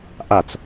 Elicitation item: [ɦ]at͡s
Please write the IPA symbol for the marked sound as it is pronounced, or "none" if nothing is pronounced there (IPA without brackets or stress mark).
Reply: ʔ